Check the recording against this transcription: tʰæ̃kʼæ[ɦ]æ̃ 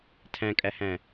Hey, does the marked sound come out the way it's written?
no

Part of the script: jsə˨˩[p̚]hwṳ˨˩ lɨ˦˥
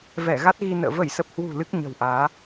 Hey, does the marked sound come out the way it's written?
yes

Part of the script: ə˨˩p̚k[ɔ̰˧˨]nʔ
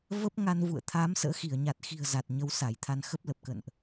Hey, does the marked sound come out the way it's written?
no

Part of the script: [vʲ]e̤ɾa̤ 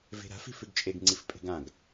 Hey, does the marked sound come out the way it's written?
no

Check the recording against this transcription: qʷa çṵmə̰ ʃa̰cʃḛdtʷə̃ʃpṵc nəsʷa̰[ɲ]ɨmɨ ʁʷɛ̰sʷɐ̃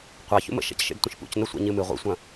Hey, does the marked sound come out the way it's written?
yes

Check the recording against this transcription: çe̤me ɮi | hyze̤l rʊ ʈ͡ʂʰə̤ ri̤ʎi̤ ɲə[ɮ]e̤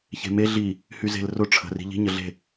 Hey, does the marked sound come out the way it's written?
yes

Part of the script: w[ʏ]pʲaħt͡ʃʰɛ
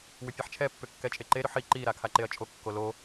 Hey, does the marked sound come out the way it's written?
yes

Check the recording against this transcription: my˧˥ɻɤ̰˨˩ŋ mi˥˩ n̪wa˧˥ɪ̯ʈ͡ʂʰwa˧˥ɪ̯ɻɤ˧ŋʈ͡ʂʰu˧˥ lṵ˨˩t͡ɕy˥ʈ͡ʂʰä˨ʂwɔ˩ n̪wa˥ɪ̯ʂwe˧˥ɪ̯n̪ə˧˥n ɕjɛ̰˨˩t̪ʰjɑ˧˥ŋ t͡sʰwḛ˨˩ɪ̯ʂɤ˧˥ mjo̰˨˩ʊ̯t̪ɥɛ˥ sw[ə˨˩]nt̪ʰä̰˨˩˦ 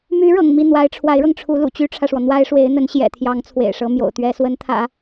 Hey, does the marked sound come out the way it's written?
no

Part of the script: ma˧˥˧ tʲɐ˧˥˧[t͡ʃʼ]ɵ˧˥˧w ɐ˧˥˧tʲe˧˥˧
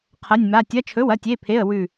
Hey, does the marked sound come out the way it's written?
no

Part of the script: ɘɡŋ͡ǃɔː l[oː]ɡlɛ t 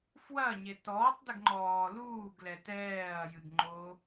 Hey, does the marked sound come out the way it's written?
no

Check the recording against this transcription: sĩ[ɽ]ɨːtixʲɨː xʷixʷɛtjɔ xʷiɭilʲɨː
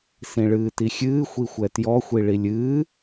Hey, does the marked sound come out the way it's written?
no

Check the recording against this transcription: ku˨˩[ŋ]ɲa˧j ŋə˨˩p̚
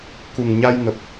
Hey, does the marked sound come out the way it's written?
yes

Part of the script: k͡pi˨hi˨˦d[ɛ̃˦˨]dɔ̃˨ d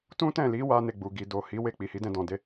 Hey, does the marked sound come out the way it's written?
no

